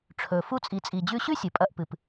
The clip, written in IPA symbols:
ʈ͡ʂʰ ɵ˨ f u˦ t͡sʼ i˨ t͡sʼ i˨ d͡ʑ ʉ˧ ɕ ʉ˦ sʲ ɨ˨ pʼ ɐ˧ ʔ p ɨ˨ p

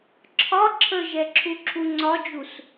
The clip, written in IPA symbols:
ǁʰ ɒ ǁʰ ə ʒ ɛ ǁʰ u ǁʰ u ŋ͡ǀ ɒ d͡ʒ u s

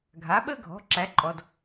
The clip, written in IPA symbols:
ɡʱ a˩˥ ɓ ə˥ ɡʱ ɔ̤˩˥ ǁ æ˩˥ ǃʼ ɔ˨˩ d

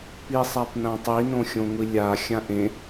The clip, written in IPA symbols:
p i sˤ a p n ã tˤ i n õ xʲ õ ŋʷ i lʲ a xʲ ã ʔ ẽ

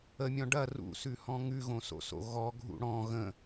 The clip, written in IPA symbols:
ə mʲ ɔ̃ ɖ ɐ r ṵ s ʉ h ɔ̃ ŋ ʉ ɣ õ s o̰ s o̰ ɣ ɔ ɡʱ ṵ ɽ ɔ̃ ɣ ə̃

